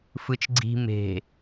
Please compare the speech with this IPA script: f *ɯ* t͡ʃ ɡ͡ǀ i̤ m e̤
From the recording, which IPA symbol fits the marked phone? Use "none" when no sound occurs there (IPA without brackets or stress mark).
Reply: ɯ